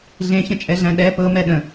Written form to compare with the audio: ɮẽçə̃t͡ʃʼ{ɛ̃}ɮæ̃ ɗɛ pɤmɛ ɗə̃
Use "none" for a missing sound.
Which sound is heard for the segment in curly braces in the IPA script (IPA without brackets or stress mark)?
ɛ